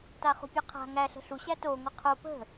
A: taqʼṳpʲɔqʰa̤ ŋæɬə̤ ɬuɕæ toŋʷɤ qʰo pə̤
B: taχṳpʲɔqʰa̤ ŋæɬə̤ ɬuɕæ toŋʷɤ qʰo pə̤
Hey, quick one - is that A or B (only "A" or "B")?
B